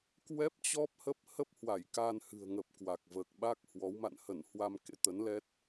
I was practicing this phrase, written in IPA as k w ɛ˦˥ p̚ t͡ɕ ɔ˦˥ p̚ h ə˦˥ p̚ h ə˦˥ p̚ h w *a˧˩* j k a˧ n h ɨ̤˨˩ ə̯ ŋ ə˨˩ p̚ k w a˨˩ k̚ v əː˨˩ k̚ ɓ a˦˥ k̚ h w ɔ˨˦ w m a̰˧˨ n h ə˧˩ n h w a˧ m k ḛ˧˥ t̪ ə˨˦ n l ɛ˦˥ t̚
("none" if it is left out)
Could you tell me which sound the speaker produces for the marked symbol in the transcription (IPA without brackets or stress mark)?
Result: a˧˩